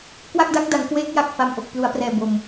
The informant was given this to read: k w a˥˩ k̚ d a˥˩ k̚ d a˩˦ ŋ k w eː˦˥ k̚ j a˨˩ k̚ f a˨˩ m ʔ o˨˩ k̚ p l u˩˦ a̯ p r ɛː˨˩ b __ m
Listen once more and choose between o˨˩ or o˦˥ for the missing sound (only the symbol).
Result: o˨˩